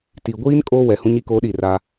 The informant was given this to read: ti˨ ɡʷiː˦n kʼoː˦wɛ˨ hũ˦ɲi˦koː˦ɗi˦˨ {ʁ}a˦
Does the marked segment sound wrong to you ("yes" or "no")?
yes